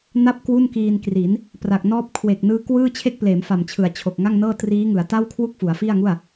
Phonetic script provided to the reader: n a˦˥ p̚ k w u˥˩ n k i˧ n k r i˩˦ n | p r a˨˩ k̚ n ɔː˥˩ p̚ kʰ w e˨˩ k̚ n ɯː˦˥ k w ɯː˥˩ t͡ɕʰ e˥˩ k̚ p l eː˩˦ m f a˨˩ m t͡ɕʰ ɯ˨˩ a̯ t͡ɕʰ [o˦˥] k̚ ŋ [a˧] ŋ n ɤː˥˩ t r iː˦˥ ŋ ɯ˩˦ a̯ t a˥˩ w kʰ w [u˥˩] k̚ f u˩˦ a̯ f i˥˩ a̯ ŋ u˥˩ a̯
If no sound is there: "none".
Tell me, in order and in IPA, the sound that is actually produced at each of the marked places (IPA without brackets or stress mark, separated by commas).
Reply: o˨˩, a˥˩, u˥˩